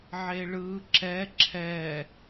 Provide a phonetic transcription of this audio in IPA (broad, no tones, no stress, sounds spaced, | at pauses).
ʕ e ɭ ɯ ǁ ɛ ǁʰ ɛ